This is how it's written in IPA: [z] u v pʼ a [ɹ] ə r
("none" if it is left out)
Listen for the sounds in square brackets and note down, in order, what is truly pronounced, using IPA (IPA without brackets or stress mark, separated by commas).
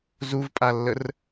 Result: z, lː